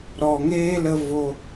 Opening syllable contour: low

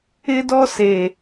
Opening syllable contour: high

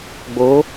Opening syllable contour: rising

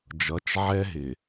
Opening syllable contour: rising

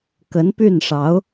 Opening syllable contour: rising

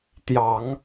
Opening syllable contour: low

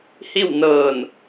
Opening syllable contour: falling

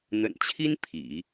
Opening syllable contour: low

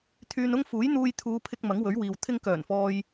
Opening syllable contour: low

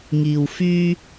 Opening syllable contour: low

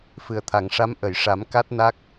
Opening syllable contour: low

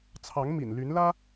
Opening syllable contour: rising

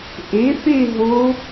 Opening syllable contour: rising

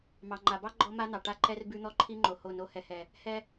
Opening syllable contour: low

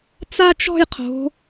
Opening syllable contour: high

